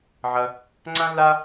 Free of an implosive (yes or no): yes